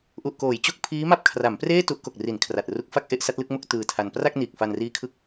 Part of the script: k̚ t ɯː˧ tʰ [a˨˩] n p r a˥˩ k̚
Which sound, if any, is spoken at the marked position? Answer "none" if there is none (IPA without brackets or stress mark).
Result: a˧